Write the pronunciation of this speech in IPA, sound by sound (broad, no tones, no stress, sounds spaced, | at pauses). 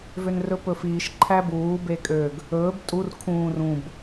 v ø n r ɵ p ɵ f iː ʃ ǃʰ æ b uː b e kʼ ø ɡ | ɵː b tʼ u r kʰ ũː r ũ b